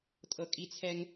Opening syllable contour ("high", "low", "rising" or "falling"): high